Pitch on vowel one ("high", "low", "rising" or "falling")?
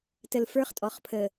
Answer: low